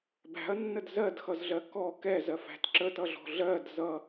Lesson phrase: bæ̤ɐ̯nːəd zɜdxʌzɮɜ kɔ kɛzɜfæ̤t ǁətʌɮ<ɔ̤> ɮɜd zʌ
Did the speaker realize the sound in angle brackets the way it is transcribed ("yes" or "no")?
yes